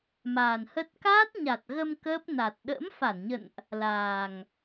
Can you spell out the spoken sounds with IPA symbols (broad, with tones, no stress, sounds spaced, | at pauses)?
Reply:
m aː˨˩ n h ə˦˥ t̚ k aː˦˥ t̚ ɲ a˨˩ t̚ ɣ ə˧ m k əː˦˥ p̚ n a˨˩ t̚ ɗ ə̰ː˧˥ m f a˧˩ n ɲ ə̰˧˨ n ʔ | l aː˨˩ ŋ